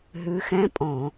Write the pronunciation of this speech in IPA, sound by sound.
ɦʉ˨˦xɛ̃˧˥˧pʼɔ̃˧˩˧

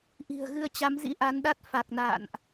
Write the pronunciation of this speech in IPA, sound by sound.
ʔi̤˨˩ə̯ɣɨ˧ə̯t͡ɕa˨˦mzḭ˧˥ ʔa˨˦nɗa˦˥t̚ fa˨˩k̚na̰ː˧˨nʔ

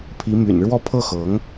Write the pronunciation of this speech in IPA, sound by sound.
pʰi˧˥my̰˨˩nɻwɔ˥˧ pʰɤ˥˩xɤ˧˥ŋ

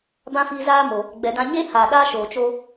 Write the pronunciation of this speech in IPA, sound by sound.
bã˦fiː˧zaː˦mo˨ | ɡ͡bɛ˨dã˧ ɲe˦ haː˨ɗaː˦ʃoː˨ t͡ʃoː˧

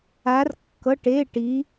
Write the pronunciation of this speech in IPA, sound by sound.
a˧˥rkːɤ˧˥˧ʈe˧˥˧ʈi˧˥

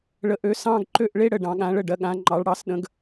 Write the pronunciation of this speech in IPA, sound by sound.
ɭə˨˦ʔø˨˦ sɑ̃˥˧ɡ ǃø˥˩ʔɭe˥˧ ɽə˥˩ɖɑ̃˨˦ɠã˨˦ɭə˥˩ ɖɜ˨˦ɠã˨˦ ŋ͡ǃɑ˨˦ɭɽɑ˨˦sɗə̃˨˦ɡ

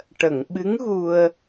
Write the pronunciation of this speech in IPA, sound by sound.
ʈə˨˩˨ŋɓɨ˧˥ŋɣu˧ə̯

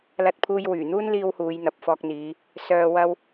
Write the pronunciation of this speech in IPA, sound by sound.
lɐ˧t̚pʰuː˧j wyː˨˩ n̪uː˥nliː˧w huː˨˧jn̪ɐ˨p̚fɔː˧k̚n̪iː˨˧ | sœː˨wɐ˧w

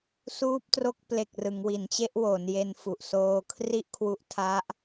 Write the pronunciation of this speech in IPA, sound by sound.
suː˦˥p̚tro˦˥k̚ ple˨˩k̚ rɯ˩˦ŋwi˩˦nt͡ɕe˦˥ʔ wo˩˦nje˧n fu˨˩ʔsoː˧kʰri˥˩ʔkʰwu˦˥ʔ tʰa˦˥ʔ

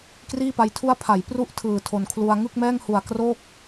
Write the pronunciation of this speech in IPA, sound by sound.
kriː˥˩pa˦˥jtʰu˥˩a̯ pʰa˩˦jpru˥˩ʔ tʰɯː˨˩tʰo˨˩nkʰlu˧a̯ ŋɯ˥˩k̚mɛː˥˩ŋhu˨˩a̯ kroː˥˩k̚

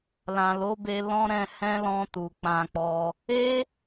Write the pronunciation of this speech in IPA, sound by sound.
lã˨ lo˨˦be˧ lɔ̃˦ɾɛ̃˧ hɛ̃˦lɔ̃˧tu˨ k͡pã˧k͡pɔ˧ | e˦

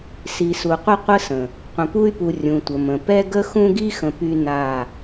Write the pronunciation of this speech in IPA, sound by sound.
si˨su˨qʷə˦ qʷə˦ sə̃˨ | qʷə̃˨pu˦y̯pu˨ rʲũ˨tʷə˨mə̃˨ pɛ˦ ɡə˦xũ˦ɡi˦xə̃˨ py˦na˦˨

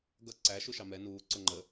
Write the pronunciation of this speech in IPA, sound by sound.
ɡʌ ǀæ ʃuʃɑmɛ nuː ǀʊŋ͡ǃə

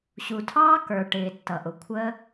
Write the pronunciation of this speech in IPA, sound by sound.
ɕu˨tʰɑː˦ kə˞˨ʈɪː˨ tːʌ˨ʔʊ˨ kʷʰəː˦

